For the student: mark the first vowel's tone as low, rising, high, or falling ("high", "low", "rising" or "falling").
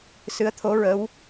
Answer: rising